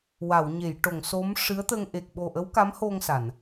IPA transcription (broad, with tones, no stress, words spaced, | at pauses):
wa˨˩˨wɲe˨˩˨j ʈo˨˩˨ŋso˧˥m ʂɨ˧˥ə̯t̪ə˧ŋ ʔe˨˩k̚ɓo˨˩ ʔə˧˥wka˧˥mho˧ŋ sa˨˩˨n